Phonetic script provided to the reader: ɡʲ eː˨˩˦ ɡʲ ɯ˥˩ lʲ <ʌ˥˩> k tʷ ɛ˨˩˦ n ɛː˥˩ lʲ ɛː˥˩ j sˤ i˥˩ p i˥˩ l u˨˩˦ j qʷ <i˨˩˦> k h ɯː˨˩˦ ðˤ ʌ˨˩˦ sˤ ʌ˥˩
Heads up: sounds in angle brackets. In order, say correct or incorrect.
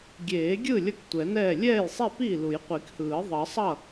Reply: correct, correct

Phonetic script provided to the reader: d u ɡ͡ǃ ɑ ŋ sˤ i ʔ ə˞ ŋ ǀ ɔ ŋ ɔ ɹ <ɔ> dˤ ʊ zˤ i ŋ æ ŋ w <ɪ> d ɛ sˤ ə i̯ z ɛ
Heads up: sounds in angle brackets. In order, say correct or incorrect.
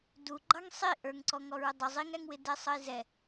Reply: incorrect: ʊ, correct

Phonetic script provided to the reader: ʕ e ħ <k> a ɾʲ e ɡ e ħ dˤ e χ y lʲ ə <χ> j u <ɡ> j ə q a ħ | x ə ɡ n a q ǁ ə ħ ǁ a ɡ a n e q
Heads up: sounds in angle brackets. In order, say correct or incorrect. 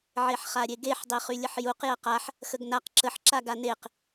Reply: incorrect: χ, incorrect: ħ, incorrect: q

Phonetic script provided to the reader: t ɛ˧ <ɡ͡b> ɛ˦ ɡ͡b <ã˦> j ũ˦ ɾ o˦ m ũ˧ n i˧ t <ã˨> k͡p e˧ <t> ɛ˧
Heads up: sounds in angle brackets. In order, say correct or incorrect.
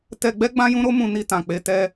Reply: correct, correct, correct, correct

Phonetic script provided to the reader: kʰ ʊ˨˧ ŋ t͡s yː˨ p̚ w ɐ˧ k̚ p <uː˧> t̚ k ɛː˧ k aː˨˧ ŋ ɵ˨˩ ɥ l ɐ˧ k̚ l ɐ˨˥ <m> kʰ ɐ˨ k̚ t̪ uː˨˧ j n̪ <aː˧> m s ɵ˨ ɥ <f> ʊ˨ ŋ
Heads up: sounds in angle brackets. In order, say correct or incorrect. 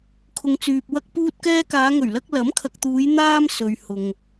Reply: correct, correct, correct, incorrect: h

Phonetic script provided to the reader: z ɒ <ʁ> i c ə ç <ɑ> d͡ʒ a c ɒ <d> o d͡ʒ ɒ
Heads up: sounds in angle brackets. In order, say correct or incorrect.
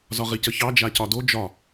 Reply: correct, correct, correct

